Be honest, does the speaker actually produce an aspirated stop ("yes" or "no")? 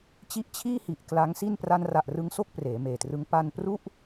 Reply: yes